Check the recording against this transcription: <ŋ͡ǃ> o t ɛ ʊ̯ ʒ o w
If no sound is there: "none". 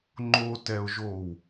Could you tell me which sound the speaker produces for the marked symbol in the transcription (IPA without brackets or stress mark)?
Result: ŋ͡ǃ